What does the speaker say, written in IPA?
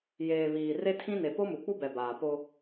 jeː˨βiː˨ re˦tʰĩ˦ne˨ po˦mu˨k͡pu˦ bɛ˨baː˨po˦

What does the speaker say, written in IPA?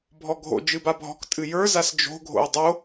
bʱɔɡʱo̰ d͡ʒɨbabʱɔ̤k tʼɨjə˞zas d͡ʒo̤ɡʱo̰ə̯ dˤo

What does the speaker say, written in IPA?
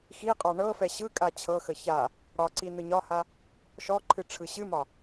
xiqʼɒ ɳɤfɛ ɕɯkʼa t͡ɕʰɤxə ça | ɽɒǀi nɯɲɒha | ʃɔǃʰɨ ʈ͡ʂʰɯɕɨmɒ

